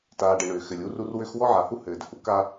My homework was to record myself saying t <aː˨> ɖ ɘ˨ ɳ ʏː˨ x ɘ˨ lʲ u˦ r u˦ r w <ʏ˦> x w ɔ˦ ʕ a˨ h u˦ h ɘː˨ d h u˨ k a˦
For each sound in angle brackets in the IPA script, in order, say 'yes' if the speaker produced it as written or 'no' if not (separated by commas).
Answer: yes, yes